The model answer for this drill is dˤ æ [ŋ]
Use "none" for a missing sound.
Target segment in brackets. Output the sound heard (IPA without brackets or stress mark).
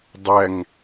ŋ